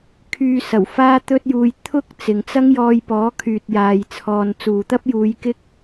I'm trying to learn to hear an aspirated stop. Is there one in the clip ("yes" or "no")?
yes